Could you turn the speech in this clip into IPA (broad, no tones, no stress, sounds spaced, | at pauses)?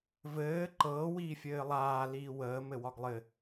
v ɘː ǃ ɤː w iː fʲ ɘː lˠ aː l iː w əː m ɘ w ɒ ɡ lˠ ɘ